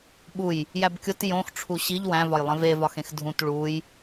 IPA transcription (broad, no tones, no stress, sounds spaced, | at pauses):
ɓ u j | j æ b kʲ o t j õ x ʈ͡ʂʰ u ɕ i ʎ w æ̃ v ɒ j lˠ ẽ v e v ɒ x ẽ x dʱ ũ t ɭ u j